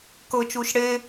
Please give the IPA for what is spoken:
kɤt͡ʃuːʃ ɽe

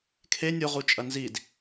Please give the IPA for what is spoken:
kʰe nʲoʁu t͡ʃʼɐnzid

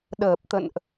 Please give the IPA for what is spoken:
ɗəː˨˩p̚t̪ə̰˧˨nʔ

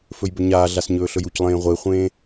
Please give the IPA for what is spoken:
fɵjbɵɲaːɮas ɲɵːɬɵjuclˠẽː ʁʷeχʷẽː

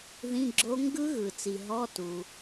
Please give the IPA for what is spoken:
ðĩ˧˥˧ɡ͡ǁo˦˥ ŋɡɯ˦˥ ɣɯ˩t͡si˩ ɦɔ˧˥˧tu˩

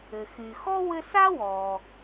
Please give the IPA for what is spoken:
ɘ˩xy˩ xɔ˥wɘ˦ sa˥wɔ˩

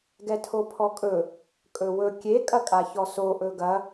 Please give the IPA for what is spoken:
ɡɛtʰopʰɔkʼɵ | kʼɵwɵ kʲe kʼɐkʼaçɔso ʔɵɡɐ

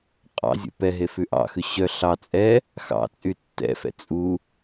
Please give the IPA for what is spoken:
qʼɑ̰ zʲṵpɛɦe fʉʔɑ̰xʉ ɕœ ɬɑ t͡sʼɛ | xɑ̰t͡sʼy tːɛ̰fɛ̰ t͡sʼu

